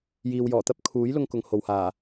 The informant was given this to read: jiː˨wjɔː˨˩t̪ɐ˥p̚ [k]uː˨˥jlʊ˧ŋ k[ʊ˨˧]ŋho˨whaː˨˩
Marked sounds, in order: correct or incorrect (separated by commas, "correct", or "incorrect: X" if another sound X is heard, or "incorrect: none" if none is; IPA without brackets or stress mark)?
incorrect: kʰ, incorrect: ʊ˧